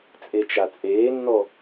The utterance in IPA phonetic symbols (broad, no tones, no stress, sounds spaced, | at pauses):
t͡sʼ e t͡ʃ a t͡sʼ eː nː ɔ